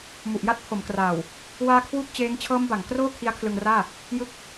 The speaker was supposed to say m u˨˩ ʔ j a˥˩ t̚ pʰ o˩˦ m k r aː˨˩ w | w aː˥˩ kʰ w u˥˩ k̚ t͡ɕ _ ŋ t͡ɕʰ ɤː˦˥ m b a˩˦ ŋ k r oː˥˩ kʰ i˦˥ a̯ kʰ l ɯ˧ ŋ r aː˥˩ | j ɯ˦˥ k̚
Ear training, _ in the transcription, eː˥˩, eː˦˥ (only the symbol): eː˦˥